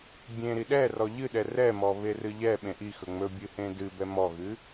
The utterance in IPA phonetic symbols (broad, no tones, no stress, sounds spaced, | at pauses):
bʲ ẽ ɾ i ɗ ɛ r ɔ ʎ ɨ ɗ ɛ r ɛ m ɔ β e r ɨ ʎ ɛ ɓ ẽ ʔ i x ɵ ŋ͡m ɵ bʲ ɨ h ẽ d ɨ b ɛ m ɔ ɣ ɨ